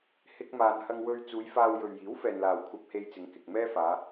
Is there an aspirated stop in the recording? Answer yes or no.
yes